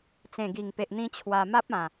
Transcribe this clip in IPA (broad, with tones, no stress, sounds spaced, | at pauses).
t͡s ẽ˨˩ ɡ i˨˩ ŋ p e˨ ʔ n̪ ĩ˧ t͡ɕʰ w a˧ m a˦ p̚ ã˨˩